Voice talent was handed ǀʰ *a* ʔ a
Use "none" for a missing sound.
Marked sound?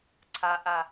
a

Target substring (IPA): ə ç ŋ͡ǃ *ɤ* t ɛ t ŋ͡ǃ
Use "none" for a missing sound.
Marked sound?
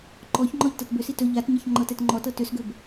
ɤ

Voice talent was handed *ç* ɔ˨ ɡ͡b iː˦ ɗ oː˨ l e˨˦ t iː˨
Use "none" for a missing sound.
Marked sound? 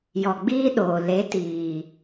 j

